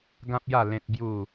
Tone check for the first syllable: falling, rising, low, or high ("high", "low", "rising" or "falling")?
high